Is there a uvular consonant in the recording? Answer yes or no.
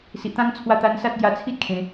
no